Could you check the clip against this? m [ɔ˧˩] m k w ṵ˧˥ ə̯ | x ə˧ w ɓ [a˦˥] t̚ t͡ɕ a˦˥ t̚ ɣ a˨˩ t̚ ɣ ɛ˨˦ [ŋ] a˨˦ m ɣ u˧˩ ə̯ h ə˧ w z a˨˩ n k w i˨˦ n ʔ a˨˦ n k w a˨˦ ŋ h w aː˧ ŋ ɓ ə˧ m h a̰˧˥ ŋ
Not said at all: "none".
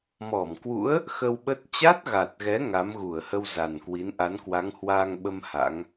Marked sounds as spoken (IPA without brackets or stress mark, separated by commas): ɔ˧˩, ə˦˥, ŋ